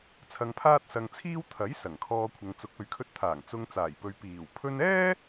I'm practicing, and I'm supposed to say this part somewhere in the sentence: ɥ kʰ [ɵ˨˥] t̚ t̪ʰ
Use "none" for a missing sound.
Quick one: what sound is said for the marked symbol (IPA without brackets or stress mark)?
ɵ˧